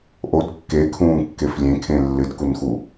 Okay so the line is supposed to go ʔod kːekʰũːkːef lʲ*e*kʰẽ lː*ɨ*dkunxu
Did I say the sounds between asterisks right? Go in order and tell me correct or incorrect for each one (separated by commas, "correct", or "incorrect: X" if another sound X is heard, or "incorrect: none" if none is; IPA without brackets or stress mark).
incorrect: ẽ, correct